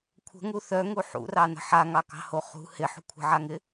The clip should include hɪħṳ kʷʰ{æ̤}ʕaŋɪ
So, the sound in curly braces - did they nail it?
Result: no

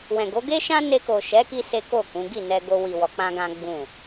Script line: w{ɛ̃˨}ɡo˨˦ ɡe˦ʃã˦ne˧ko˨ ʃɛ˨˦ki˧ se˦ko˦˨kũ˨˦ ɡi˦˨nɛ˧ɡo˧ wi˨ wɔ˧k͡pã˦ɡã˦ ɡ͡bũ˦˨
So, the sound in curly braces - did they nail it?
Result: yes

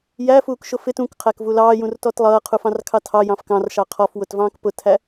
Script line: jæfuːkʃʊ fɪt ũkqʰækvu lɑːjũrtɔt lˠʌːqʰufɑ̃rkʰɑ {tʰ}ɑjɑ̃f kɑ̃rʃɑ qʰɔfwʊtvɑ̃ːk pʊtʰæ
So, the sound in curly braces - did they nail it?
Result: yes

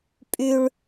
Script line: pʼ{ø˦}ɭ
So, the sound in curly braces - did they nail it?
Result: no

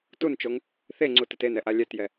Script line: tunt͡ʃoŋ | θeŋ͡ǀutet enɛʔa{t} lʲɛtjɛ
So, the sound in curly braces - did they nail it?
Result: no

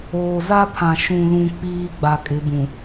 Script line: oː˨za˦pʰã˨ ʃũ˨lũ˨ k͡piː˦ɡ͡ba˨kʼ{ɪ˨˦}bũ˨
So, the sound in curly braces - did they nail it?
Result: yes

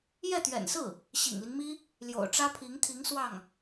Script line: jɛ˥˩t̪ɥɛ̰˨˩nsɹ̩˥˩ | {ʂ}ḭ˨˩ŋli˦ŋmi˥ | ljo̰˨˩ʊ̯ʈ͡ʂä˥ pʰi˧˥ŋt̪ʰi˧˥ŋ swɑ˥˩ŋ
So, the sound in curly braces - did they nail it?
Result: no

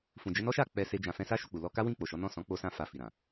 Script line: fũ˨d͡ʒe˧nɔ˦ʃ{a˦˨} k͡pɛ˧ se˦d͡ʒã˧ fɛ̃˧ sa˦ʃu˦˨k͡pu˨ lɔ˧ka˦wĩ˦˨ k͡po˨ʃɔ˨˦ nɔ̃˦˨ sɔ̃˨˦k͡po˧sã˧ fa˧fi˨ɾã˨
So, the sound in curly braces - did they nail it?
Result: yes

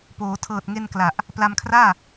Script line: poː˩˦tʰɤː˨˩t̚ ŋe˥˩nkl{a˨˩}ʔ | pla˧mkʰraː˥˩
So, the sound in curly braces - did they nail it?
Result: yes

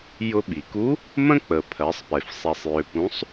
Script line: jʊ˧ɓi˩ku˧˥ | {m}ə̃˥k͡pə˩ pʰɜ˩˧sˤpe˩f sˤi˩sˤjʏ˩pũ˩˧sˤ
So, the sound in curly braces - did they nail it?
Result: yes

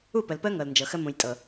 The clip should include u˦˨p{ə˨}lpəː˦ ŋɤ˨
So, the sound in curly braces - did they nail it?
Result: yes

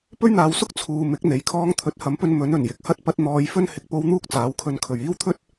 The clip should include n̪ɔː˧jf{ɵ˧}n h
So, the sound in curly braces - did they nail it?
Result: no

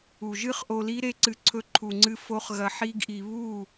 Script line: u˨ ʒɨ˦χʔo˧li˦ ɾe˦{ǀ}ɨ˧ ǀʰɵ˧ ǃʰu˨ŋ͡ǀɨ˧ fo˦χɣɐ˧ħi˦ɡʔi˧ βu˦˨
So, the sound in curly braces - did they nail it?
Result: yes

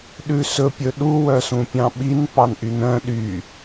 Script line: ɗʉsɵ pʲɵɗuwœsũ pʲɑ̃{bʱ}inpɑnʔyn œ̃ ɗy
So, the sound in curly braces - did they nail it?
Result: no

